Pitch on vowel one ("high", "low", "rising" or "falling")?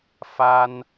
high